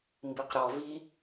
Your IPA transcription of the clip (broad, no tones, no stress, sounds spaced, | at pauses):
m b i q ɾ ɔ v i